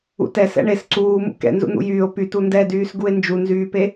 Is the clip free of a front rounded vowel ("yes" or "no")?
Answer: no